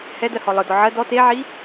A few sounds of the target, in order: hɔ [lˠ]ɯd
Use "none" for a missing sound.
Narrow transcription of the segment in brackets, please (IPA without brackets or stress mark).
lˠ